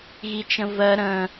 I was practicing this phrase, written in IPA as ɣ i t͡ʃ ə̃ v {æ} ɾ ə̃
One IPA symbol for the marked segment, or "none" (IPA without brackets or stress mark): ɜ